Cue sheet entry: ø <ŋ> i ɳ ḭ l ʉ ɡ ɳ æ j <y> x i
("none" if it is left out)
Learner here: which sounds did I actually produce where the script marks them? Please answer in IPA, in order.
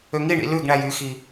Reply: ŋ, y

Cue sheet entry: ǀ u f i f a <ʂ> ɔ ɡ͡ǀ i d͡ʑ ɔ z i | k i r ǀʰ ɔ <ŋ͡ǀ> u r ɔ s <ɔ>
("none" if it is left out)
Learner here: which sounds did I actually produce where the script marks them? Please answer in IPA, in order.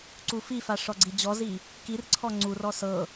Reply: ʂ, ŋ͡ǀ, ɤ

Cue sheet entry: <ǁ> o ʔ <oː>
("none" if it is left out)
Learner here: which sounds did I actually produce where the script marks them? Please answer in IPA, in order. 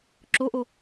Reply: ǁ, o

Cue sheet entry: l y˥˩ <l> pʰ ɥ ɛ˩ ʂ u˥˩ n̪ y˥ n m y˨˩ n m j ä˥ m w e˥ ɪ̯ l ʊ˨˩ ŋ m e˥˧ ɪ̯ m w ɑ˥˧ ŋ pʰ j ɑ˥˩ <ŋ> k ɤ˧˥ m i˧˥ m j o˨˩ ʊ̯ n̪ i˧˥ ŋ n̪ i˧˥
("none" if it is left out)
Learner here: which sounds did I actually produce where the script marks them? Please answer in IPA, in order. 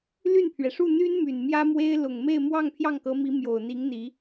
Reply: n, ŋ

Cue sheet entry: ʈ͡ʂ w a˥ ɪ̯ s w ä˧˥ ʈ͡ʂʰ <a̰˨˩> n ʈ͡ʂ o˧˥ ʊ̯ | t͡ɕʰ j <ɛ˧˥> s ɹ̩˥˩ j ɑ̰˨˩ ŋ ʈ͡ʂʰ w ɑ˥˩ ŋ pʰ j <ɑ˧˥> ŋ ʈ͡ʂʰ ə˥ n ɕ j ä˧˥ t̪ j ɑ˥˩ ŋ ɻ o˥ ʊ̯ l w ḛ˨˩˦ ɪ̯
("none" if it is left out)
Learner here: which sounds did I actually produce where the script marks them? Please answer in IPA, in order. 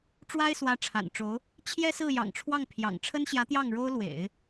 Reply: a̰˨˩, ɛ˥, ɑ̰˨˩

